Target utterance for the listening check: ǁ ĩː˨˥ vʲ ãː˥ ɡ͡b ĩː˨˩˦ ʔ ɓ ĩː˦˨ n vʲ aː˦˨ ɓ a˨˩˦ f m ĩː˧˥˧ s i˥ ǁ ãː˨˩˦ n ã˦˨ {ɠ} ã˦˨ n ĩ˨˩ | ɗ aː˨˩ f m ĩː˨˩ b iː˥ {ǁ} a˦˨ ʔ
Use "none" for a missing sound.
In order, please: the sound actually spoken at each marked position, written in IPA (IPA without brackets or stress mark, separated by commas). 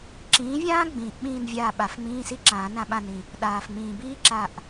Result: ɓ, ǁ